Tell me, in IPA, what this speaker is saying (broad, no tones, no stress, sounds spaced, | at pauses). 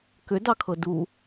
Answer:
k ʏ d ɑ kʰ ɤ d u